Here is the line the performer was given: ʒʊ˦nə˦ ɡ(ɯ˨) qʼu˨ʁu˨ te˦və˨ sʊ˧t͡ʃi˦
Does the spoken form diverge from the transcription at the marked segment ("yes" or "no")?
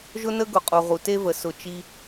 yes